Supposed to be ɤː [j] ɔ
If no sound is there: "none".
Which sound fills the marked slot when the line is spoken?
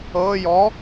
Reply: j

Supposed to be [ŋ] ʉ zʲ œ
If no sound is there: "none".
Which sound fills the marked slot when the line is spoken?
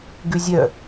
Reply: ɡ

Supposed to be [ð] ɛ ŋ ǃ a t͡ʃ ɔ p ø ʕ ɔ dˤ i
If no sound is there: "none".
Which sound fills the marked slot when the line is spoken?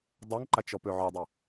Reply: dˤ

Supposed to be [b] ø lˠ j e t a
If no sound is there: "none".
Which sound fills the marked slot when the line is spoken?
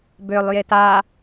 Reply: b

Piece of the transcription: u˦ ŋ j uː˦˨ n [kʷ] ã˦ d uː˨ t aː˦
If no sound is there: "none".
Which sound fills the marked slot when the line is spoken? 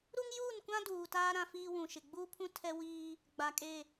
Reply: kʷ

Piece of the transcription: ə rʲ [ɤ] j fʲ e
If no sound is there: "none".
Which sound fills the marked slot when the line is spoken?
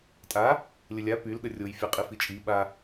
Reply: o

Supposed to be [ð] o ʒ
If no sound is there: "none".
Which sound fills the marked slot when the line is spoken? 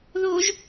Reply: ð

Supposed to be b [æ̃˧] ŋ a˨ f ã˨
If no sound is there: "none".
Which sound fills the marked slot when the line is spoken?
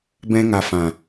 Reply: ɛ̃˧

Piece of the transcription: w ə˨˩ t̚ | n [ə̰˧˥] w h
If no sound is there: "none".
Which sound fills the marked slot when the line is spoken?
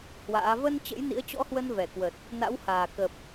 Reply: a̰˧˥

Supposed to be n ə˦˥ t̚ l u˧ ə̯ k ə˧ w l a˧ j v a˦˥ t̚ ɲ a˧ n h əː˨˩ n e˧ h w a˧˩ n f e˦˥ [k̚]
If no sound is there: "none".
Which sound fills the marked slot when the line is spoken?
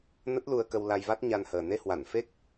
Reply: k̚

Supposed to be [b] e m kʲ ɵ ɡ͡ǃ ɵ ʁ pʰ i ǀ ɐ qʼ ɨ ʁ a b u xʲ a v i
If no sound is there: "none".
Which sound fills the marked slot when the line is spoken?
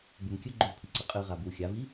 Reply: b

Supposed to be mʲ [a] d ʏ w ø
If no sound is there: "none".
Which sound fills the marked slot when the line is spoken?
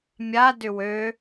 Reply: a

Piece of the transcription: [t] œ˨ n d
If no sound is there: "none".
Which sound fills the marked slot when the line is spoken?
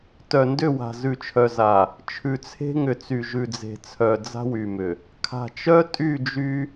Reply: t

